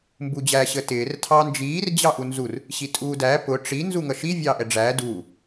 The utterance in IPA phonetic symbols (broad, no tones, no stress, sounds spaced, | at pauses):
m b u d͡ʑ æ ɕ ə t ɪː r tʰ ɑ n d͡ʒ iː r d͡ʑ ɑ ʔ u n z u r | ɕ i tʼ uː d æ p ʊ ʈ͡ʂ i n z u ŋ ʌ ʃ i vʲ ɑː ʔ ɛ ɖ͡ʐ æː d uː